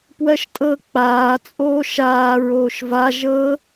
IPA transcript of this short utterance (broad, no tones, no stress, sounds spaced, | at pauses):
p w ɜ ʃ tʼ ɤ k͡p aː t͡sʼ oː ʃ aː ɹ oː ʃ v a ʒ ɤ